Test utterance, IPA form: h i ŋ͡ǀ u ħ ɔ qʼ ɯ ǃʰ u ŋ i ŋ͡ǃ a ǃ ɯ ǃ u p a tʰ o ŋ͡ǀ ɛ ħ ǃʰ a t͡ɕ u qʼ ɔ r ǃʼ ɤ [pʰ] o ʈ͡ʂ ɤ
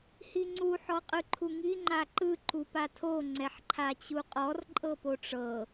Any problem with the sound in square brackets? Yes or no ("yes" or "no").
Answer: yes